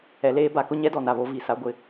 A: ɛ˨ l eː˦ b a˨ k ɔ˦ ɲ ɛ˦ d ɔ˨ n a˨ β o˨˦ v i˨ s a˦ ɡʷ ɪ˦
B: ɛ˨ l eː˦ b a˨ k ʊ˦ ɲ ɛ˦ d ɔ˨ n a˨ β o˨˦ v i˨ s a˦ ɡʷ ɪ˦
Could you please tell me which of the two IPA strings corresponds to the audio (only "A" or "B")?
B